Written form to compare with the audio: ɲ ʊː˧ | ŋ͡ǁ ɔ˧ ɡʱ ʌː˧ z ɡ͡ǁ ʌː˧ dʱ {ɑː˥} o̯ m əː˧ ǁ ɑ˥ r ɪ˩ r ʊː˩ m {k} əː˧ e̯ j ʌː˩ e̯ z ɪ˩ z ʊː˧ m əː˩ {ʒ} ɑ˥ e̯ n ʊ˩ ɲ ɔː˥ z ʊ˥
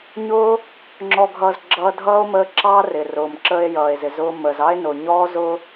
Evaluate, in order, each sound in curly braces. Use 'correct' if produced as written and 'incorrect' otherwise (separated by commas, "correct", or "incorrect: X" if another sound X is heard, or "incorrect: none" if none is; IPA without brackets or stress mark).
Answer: incorrect: ʌː˥, incorrect: ǁ, incorrect: z